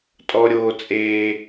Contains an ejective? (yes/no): yes